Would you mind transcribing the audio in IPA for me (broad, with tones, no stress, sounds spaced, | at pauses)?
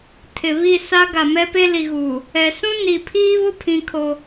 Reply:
tʰ ɪ˨ β i˦˨ s a˦ ɡ a˨ m ɛ˦ p e˦ l i˨ ɣ uː˨ | ɛ˨ s ũ˦ n i˨ pʰ iː˦ β ʊ˦ pʰ ĩ˦ kʰ o˦